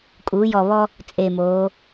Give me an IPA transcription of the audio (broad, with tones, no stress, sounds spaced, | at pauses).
kʼ uː˩˧ j ɔ˨˩ β ɔ˦ | t͡sʼ e˨˩ m oː˩˧